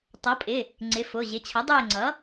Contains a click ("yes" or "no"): yes